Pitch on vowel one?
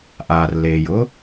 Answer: low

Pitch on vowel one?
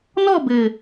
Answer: falling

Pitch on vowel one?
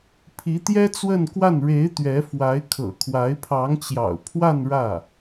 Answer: rising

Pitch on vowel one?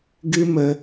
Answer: high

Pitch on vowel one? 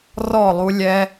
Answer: falling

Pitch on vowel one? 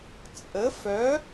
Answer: rising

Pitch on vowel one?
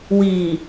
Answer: low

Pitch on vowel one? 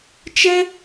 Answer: high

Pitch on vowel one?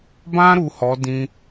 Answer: high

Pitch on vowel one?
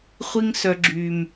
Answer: high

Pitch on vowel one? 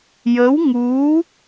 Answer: rising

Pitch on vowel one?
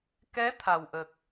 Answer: rising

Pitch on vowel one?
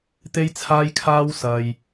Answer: high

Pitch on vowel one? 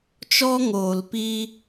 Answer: high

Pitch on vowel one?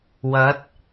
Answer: rising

